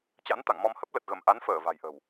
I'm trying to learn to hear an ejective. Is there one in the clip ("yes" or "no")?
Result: no